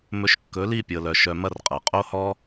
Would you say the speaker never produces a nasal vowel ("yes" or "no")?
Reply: yes